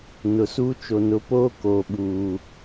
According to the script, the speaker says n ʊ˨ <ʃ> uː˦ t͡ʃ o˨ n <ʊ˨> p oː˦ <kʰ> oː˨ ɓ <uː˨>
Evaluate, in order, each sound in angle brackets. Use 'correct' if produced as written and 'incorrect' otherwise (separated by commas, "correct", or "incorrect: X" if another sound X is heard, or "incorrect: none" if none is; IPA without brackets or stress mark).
incorrect: s, incorrect: ʊ˨˦, incorrect: k, correct